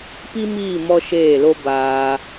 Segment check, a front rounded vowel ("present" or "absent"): absent